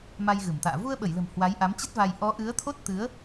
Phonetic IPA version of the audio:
ma˧jɣɨ˧˩mt̪a̰ː˧˨ vu˧ə̯ɓə˧˩jlə̤˨˩m hwa˨˦jʔa˨˦mt͡ɕə˦˥t̚va˧j ʔɔ˨˦ʔɨ˨˦ə̯t̪ʰo˦˥t̚t̪ɨ˨˦ə̯

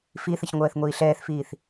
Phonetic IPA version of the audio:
fiθəç ŋʷɜːθŋʷiːɬɛːθfiːθ

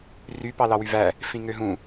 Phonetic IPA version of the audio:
ry pɑlɑwyvæ | fĩŋøɦũ

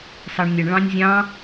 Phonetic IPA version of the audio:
sɑɳnʲəɳ ɭɑ̃nʲzʲɑ̃

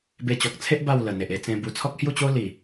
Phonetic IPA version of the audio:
be˧t͡ɕɔ˨k̚t͡sʰe˦ʔ ba˥˧wlə˨˩ n̪e˨ʔe˧t͡sẽ˧bu˧ t͡sʰɔ˦k̚hju˥˧t͡ɕo˦ li˨˩

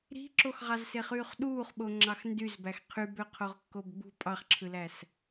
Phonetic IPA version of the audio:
ɾi̤ǁoxʁɑz seχyːχɗuːχɓo ŋ͡ǁɑxndyzbæx qʰybø qʰoʁkːobɡ͡bṳ pʼɑχǁʰɯlæs

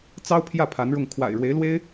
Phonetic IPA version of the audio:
t͡sɑ˥ʊ̯pʰjä˥˩ pʰa˧˥nɻʊ˥˩ŋ kʰwa̰˨˩ɪ̯ɻwe˧˥ɪ̯lwe˥ɪ̯

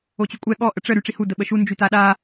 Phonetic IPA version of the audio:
ot͡ɕykʷʼɛ ɠɔ ʔəʈ͡ʂə ɾyʈ͡ʂihu dəɓəʃu nd͡ʒytaɗa

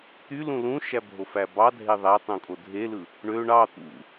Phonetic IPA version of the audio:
t̪ylũ lũʃæbʱofæ bɑdʱe ðˤætˤũkʼo dʱelɯ | ɳø ɳɑ t̪ṵ

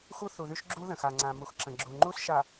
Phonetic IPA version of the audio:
xu˦ θu˨ðy˦ʃ ɡ͡ǁu˦ ðə̃˨xa˨ŋ͡ǀã˨ mu˨xǁə̃˨ɡ͡ǁu˨ ŋ͡ǃu˦sʃa˨

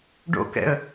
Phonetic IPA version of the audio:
ɖo̰kɛ̰ə̯

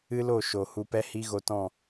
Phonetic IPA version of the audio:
ɨ˦lo˦˨ ʃo˨hu˧pɛ˦ hi˦ɣo˧tɔ̃˦˨

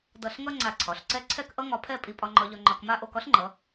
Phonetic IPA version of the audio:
dʌ˧˩ɬŋʌ˥ ŋ͡ǀa˧˩ǀʰɒ˩˧ɬǀɛ˥ ǀʰɛ˥˧kʔʌ˥ŋɒ˧pʰɛ˥˧ pʼi˧ pʼɒ˧ŋ͡ǃɒ˧ʎɒ˧ ŋ͡ǃɒ˧kma˥˧ʔo˥˧k ɒ˥ɬŋ͡ǃʌ˩˧

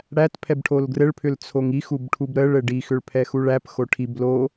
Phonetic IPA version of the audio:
ɽæt pʰɛbʈʰolɡrɘɭpʰʏl t͡sʰoŋixub ʈʰubɾəɭɘ ɖixʏɭ pʰɛxuɭæpxo ʈʰib lo

